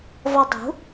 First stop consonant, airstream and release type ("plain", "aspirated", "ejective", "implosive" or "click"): plain